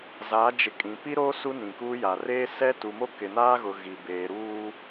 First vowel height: low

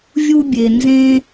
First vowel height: high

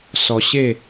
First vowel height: mid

